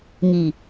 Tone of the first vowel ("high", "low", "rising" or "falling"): low